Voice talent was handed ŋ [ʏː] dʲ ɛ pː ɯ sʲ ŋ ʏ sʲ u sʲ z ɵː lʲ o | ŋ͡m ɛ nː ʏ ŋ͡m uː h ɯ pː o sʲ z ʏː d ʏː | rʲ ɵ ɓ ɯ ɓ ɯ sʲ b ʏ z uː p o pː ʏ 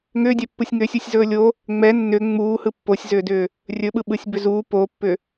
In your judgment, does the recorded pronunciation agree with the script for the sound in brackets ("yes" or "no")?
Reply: yes